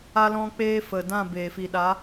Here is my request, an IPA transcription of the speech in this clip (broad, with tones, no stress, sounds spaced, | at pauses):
a˦ l ɔ̃˦ k͡p eː˦ f ə˨ d ã˦˨ b eː˨ f i˨ ɗ a˨˦